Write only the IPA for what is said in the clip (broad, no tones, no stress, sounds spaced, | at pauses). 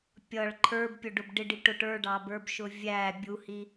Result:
pʲ ʌ ɭ ǃʰ ə˞ b pʲ ʊ ɖ ʊ b ɖ ɪ ɖ i ʈ ʊ ʈ ə˞ ɖ ɑ b ə˞ b ʃ ʊ vʲ æ bʲ u h i